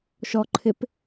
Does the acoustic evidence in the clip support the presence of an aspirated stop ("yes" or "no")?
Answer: yes